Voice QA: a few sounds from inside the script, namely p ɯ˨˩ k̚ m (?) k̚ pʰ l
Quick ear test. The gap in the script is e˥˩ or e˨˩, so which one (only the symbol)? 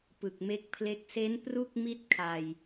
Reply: e˥˩